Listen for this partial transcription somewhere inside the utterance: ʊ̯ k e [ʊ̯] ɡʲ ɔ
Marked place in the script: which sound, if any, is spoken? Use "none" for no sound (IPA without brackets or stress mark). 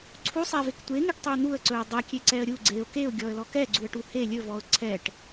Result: ʊ̯